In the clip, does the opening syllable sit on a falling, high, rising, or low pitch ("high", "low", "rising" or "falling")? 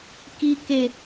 low